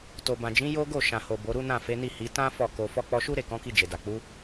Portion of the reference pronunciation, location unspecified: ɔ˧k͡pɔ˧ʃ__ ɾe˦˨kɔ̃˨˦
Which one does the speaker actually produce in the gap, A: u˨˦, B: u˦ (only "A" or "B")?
B